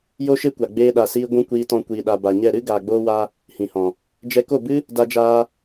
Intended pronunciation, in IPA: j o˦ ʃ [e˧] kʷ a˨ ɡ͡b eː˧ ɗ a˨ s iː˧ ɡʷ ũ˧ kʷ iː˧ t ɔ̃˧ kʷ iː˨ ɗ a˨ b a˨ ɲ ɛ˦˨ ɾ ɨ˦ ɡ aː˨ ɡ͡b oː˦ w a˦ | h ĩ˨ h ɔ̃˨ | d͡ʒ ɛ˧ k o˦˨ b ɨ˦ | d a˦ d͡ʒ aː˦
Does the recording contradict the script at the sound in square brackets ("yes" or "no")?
yes